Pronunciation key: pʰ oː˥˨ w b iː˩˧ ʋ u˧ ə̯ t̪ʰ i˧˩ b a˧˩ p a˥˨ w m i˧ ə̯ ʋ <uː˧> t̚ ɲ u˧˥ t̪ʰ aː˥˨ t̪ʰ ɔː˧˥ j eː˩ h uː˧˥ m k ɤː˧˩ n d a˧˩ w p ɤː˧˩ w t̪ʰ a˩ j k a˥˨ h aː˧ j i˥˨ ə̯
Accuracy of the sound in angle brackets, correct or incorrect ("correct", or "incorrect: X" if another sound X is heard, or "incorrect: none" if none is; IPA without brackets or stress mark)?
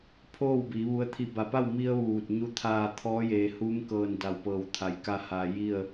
incorrect: uː˧˩